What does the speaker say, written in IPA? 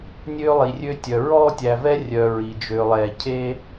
nʲ øː˦ lˠ i˨ rʲ ø˥ tʲ œ˨ ɹ ɔː˥ tʲ æ˨ v ɛ˥ rʲ œ˨ ɹ i˩ d͡ʒ ø˨ lˠ ɛː˨ cʰ e˥

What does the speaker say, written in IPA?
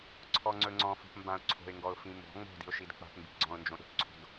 ǀʰ ɔ ŋ͡ǀ ɵ ŋ͡ǀ ɔ̃ f o̤ p m b ã ʊ̯ ǀʰ o̤ ɪ̯ ŋ ɡ ɔ ʊ̯ f ĩ m b ɔ̤ ŋ͡m o̤ d i̤ ʊ̯ ʃ i d k͡p a̤ p m b i̤ ɡ͡ǀ ɔ̃ ʊ̯ n d͡ʒ õ ɗ o̤ p ǀʰ o̤ d

